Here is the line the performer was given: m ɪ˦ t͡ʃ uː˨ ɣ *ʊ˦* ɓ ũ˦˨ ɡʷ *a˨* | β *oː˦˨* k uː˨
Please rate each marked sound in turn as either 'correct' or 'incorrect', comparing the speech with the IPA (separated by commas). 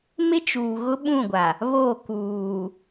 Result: correct, correct, correct